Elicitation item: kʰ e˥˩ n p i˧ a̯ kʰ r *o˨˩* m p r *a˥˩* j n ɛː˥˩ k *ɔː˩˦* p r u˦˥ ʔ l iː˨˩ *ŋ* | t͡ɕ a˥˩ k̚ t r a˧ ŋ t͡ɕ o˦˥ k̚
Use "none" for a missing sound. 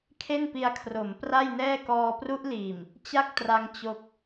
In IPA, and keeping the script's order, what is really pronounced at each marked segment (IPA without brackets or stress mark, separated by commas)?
o˩˦, a˥˩, ɔː˧, m